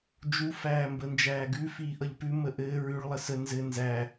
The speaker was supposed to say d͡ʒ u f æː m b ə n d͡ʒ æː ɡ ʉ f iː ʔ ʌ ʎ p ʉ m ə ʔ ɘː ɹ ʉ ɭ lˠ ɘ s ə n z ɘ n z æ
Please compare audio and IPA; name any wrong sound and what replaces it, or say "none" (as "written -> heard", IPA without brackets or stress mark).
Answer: none